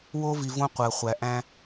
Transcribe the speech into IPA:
wo˦vi˨võ˦ qʷɜ˨χʷæ˨ ʔæ̃˦

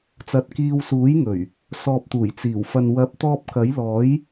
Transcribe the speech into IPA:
t͡sɐ˧t̚kiː˧wsuː˨˥jŋɵ˨˩ɥ | sɔː˨p̚t̪uː˨˩j t͡siː˨˩wfɐ˨nwɐ˨˥p̚t̪ɔː˧p̚ kɐ˨˥jlɔː˨˥j

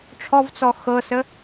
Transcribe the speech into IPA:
ʈ͡ʂʰɔvt͡sɔ xɤsə

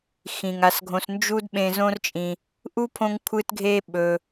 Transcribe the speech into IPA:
xĩ˩ŋa˨sɡʱõ˨s nd͡ʒu˦dɓẽ˨ zõ˥rt͡ʃʼĩ˨ | ʔu˥pʰõ˦ŋ kʷʰɨ˥tɡʱe˥ ɓɵ˩

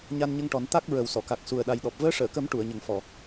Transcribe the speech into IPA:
ɲa˧nɲə˧ŋʈɔ˨˩˦n t̪a˦˥k̚ ɹə˨˩wsɔ˨˩˨ka˨˩k̚ su˨˩ə̯ɗa˨˩jɗɔ˨˩p̚ vəː˧˥ʂəː˨˩˨kə˨˩˦m ʈu˨˩˨ə̯ɲə˨˩ŋfɔ˨˩˨

